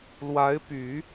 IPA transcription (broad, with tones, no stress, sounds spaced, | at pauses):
l w a˧˥ ɪ̯ p y˨˩˦